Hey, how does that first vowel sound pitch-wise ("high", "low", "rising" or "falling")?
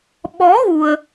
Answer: rising